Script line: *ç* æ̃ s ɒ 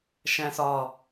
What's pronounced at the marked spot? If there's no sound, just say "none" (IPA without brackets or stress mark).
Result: ʃ